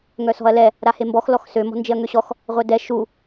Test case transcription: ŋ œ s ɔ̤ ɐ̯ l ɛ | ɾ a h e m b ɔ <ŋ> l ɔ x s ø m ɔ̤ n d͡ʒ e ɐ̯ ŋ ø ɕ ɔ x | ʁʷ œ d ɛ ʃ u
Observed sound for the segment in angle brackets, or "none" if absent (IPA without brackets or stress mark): x